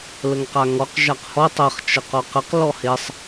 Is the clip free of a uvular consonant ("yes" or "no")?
no